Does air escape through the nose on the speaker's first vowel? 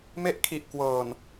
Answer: no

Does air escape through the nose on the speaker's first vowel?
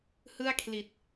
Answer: no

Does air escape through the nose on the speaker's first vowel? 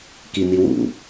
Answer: no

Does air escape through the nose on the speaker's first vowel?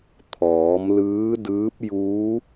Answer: no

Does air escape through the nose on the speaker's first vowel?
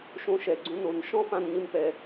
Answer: yes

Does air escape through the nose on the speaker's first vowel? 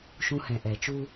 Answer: yes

